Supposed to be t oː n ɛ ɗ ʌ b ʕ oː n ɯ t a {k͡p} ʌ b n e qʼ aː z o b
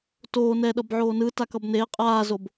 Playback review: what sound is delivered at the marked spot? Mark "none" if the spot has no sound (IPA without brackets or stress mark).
k